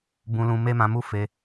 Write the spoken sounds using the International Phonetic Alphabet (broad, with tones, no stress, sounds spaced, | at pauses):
b ũ˧ l ũ˧ m e˦ m ã˧ m u˦ f e˧